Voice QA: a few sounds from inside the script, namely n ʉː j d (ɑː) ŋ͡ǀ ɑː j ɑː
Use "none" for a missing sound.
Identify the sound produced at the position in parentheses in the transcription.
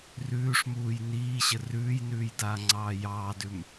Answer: aː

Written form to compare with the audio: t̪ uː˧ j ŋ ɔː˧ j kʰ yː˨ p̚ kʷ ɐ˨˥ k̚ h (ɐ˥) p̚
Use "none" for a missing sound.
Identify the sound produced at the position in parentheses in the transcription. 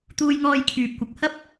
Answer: ɐ˥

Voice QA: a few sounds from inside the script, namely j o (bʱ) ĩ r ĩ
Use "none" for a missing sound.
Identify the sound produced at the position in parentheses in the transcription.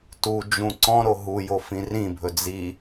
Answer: f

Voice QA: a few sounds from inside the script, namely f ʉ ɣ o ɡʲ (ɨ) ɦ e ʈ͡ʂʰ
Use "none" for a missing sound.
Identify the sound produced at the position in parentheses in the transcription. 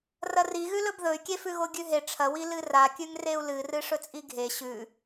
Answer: ʉ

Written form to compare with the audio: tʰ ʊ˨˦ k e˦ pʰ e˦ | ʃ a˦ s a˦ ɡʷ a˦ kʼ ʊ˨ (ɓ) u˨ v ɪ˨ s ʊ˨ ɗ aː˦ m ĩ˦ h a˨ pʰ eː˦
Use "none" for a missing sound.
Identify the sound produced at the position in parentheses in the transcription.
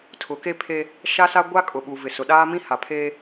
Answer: ɓ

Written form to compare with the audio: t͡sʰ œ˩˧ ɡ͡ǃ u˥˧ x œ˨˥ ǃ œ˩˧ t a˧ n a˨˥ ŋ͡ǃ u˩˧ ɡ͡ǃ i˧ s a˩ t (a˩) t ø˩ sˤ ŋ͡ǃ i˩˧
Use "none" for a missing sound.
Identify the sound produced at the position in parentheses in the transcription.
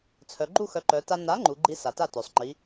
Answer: a˥˩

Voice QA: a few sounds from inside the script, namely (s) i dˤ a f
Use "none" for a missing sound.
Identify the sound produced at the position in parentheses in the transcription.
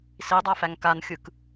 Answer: s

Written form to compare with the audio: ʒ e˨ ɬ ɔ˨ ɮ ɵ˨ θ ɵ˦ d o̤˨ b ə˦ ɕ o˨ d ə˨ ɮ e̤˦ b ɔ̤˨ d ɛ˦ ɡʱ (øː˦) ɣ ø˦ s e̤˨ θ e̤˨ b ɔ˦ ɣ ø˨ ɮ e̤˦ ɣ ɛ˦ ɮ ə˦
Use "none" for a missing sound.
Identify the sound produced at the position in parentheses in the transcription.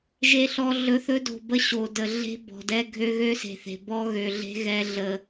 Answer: ø˦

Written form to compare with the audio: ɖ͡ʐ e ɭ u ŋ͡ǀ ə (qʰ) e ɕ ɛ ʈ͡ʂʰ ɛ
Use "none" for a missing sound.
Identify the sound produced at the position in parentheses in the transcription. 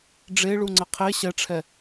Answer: qʰ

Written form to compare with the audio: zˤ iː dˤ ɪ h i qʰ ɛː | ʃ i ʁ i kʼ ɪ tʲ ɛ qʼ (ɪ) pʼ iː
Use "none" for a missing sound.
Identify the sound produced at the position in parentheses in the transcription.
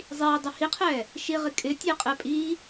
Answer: ɛ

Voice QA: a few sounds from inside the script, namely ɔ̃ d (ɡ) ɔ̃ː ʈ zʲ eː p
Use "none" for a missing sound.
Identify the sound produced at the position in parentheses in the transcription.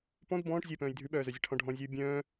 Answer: b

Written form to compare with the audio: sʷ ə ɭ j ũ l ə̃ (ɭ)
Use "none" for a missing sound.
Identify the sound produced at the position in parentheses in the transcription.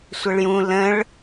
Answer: ɭ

